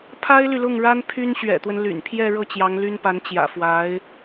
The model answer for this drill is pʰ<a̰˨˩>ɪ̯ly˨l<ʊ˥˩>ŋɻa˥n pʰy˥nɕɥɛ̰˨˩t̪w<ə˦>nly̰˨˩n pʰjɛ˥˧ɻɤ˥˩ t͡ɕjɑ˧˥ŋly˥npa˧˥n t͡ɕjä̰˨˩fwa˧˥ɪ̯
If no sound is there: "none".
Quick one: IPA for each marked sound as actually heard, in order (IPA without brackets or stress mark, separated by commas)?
a˥, ʊ˥˩, ə˦